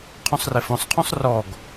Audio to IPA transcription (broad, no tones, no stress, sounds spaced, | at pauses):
qʰ ũ sˤ r e f õ sˤ qʰ ũ sˤ r ɔ ɡ